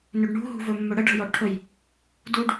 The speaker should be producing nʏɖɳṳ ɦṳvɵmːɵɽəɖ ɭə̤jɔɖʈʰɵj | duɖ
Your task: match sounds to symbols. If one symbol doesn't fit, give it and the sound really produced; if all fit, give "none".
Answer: none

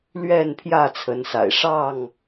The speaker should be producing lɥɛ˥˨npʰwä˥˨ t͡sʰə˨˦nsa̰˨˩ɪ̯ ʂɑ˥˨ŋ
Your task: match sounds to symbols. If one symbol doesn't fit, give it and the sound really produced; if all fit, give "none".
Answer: w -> j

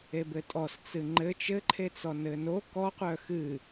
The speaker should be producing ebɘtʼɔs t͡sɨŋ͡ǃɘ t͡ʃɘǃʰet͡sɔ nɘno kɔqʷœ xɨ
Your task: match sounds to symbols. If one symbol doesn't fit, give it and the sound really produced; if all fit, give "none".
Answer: none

